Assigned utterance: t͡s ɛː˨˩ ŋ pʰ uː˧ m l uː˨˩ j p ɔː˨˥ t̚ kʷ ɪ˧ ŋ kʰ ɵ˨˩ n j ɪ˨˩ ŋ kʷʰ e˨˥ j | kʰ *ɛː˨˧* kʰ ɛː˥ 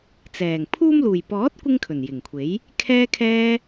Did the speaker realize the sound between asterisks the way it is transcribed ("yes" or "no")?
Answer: no